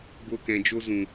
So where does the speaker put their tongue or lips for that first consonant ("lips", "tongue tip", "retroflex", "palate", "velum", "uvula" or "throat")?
lips